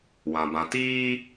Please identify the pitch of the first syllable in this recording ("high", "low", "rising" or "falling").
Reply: low